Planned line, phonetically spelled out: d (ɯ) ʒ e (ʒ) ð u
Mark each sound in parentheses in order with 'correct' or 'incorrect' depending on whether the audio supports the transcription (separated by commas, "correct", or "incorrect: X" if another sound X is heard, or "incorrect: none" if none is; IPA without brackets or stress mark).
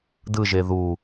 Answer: correct, incorrect: none